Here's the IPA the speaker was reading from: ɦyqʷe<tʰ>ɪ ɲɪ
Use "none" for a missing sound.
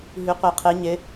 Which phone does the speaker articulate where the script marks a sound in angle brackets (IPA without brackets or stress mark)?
qʰ